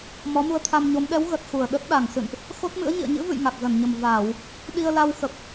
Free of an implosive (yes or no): no